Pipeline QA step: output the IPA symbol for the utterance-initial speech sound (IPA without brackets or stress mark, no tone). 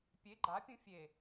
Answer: pʲ